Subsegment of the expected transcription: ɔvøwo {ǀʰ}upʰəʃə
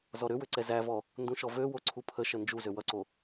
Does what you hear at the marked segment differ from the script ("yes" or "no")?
no